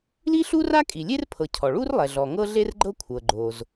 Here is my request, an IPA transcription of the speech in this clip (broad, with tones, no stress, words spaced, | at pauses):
li˥ɬu˥ra˥kʼi˩ lʲe˥rpʰɤ˩ cʰɔ˩ɭu˥r lˠɛ˩ɮɔ˩ ŋɤ˥ɮe˥rɡ͡ǃɤ˥ kʷʰɤ˩ɡ͡ǃo˩z